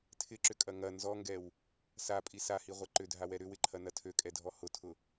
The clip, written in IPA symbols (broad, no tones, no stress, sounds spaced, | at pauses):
tʰ ɪ ǁ ʏ kʼ ɐ ŋ ɐ n z ɔ ŋ ɡ ɛ w | s a pʼ i s a h i ʁʷ ɛ ǃ ʏ dʱ a w ɛ ɾ ʏ w ɪ ǃʰ ɐ n ɐ tʰ ø kʼ ɛ dʱ ɔ h ʊ tʰ ʊ